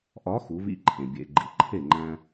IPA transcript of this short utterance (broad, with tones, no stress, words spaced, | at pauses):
ʔɒ˨˦ xu˨˦vḭ˦ǃʰẽ˨ bʲḛ˨ ɡ͡ǃḭ˨ǃʰe˦˨ŋ͡ǃæ̃˦